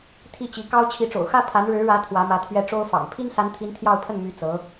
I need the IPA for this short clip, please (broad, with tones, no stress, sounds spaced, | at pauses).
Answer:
t̪ʰ i˥˩ t͡ɕ i˧˥ k ɑ˥ ʊ̯ t͡ɕʰ i˧˥ ʈ͡ʂ o̰˨˩ ʊ̯ x ä˥ pʰ a˧˥ n ɻ ɻ̩˧˥ ɻ ä˧˥ t̪ʰ w ä˧˥ m ä˧˥ t̪ʰ ɥ ɛ˥˩ ʈ͡ʂ o˥ ʊ̯ f ɑ̰˨˩ ŋ pʰ i˥ n s a˧˥ n t̪ʰ i˧˥ n t̪ʰ j ɑ˥˧ ʊ̯ pʰ ə˥˩ n m y˧˥ t͡s ɤ˧˥